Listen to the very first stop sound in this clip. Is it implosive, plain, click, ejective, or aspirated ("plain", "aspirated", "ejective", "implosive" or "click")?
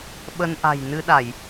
implosive